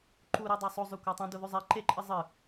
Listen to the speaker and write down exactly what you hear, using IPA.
ǃ u ɾ i dˤ a sˤ o zˤ ʉ kʷ a tˤ ũ d o ð ʉ zˤ e ǃ e ǃʼ ɨ zˤ ɨ

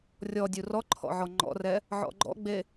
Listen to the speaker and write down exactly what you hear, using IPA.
rʲ ɔ dʲ u r ɔ ǃʰ ɔ̰ ʕ ɔ ŋ͡ǃ ɔ̰ r ɛ | ʕ ɔ̰ ɡ͡ǃ ɔ̰ ɡ͡b e

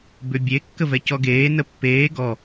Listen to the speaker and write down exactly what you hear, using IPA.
b ʏ bʲ e kː ə v ɛ c ɔ ɡ eː n ə pː eː ɡ ɔ

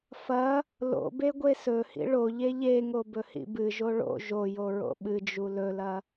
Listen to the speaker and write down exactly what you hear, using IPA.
f ɐ | l o̰ b e ɡʷ e s ɵ h ḭ ɭ o ʎ e ʎ e ŋ o b ɵ h ḭ b ɨ ʒ o ɭ o̰ ʒ o j o ɹ o̰ ɓ ɨ d͡ʒ u l ɵ l ɐ

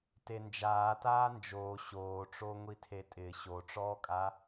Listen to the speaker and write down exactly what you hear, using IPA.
t e n d͡ʒ aː t aː n d͡ʒ oː ɕ oː ʈ͡ʂ oː ŋʷ i tʰ e tʼ ɪː ɕ o ʈ͡ʂ ɔː kʼ a

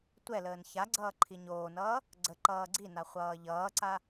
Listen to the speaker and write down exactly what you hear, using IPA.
tʷ ɛ l əː n ç a ɡ͡ǀ ʌː ǃʰ i ɲ oː n ʌː | ɡ͡ǀ ə ǃ ʌː ɡ͡ǀ i n a χʷ ʌː ʎ ʌː ǀ a

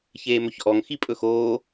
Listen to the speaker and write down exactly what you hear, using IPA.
ç eː m ɵ ç ʔ ɔ ŋ x i pʼ ɵ x oː

